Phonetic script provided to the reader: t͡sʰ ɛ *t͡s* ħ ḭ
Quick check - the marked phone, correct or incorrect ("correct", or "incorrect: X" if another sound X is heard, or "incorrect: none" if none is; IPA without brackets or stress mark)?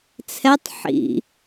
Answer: incorrect: tˤ